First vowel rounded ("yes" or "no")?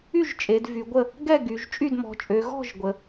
yes